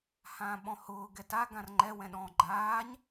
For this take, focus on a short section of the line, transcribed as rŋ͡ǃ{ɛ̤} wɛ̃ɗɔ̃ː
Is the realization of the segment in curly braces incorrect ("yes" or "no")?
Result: yes